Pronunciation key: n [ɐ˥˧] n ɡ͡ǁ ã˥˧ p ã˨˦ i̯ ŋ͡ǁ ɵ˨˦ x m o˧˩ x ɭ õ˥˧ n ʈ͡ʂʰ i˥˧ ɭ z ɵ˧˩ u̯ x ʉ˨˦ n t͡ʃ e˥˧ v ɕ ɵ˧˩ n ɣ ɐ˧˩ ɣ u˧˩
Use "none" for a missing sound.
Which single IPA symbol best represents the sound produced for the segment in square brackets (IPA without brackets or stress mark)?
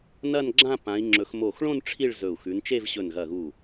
ɐ˥˧